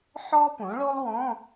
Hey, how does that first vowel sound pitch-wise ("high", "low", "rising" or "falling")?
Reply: high